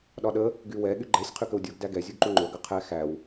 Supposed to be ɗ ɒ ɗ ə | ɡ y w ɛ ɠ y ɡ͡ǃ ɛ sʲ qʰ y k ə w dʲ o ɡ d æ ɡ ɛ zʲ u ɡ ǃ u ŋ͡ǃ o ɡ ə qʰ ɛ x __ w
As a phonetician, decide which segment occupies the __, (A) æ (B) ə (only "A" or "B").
A